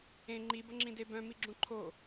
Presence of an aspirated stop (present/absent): present